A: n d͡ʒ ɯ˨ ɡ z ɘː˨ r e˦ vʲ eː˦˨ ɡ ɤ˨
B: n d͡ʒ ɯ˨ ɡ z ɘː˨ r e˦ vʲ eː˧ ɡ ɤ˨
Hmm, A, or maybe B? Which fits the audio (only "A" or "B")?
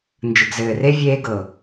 B